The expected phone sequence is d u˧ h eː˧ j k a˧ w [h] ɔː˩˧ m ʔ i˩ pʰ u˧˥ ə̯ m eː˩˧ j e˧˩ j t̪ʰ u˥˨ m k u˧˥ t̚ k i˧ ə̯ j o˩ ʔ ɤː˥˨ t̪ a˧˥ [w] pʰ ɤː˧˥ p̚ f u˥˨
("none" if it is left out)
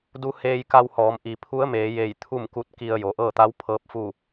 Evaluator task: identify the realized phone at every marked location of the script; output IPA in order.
h, w

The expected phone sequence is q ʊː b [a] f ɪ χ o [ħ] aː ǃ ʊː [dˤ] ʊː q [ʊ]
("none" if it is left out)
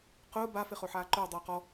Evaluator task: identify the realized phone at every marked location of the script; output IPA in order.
a, ħ, dˤ, ɔ

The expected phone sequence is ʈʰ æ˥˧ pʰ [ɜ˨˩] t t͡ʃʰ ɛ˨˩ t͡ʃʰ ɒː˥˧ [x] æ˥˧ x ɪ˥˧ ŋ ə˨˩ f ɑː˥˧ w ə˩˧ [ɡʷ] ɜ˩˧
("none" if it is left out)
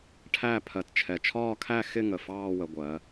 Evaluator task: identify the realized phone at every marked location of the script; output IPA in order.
ɜ˨˩, kʰ, ɡʷ

